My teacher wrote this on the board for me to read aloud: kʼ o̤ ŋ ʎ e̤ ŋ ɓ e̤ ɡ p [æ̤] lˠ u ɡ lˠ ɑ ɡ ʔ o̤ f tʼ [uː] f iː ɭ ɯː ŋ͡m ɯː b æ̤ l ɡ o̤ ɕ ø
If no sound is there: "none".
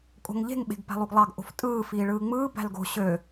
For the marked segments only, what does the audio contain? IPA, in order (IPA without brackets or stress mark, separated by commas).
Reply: æ̤, ɯː